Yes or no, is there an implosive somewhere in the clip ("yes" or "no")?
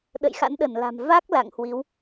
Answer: yes